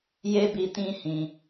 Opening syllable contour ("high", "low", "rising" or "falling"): high